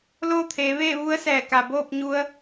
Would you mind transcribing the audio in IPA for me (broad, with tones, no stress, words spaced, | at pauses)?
loː˥˨t̪ʰeː˩˧ʋeː˥˨ ʋu˧˥ə̯ sɛː˧˩ka˩ boː˥˨p̚ɲu˧ə̯